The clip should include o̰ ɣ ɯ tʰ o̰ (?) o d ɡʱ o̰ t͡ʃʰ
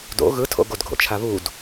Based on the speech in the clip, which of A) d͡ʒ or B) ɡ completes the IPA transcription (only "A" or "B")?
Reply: B